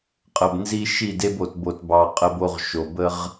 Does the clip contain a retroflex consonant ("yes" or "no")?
no